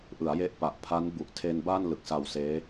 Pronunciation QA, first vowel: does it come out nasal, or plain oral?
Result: oral